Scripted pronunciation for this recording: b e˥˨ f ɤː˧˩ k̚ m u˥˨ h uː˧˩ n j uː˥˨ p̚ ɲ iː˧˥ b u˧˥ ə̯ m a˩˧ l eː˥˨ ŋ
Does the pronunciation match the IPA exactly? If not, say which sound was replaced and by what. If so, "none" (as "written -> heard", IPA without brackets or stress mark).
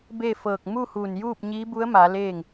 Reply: none